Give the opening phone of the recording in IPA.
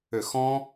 ʏ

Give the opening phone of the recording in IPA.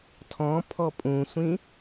tʰ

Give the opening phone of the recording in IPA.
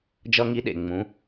d͡ʒ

